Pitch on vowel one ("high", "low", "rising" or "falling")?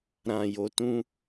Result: low